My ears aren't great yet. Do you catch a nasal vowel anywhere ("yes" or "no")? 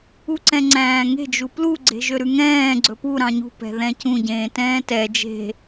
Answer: yes